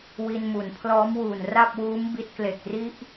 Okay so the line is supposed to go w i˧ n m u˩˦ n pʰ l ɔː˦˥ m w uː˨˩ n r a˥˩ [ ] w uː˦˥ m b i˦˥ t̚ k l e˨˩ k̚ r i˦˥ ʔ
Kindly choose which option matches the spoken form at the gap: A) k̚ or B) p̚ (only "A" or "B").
B